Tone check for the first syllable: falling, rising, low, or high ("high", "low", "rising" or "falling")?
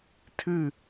falling